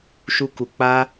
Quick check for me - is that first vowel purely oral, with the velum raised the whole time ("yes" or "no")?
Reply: yes